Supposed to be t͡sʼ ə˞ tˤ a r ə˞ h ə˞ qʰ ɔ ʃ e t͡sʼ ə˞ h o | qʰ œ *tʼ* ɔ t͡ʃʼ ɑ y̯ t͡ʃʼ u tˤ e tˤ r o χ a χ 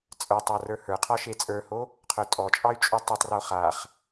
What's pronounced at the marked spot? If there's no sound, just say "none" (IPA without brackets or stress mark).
tʼ